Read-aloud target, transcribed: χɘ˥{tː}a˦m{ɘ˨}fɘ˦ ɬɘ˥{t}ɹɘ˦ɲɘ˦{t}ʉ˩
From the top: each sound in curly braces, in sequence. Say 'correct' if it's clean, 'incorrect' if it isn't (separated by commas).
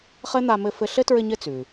incorrect, incorrect, correct, incorrect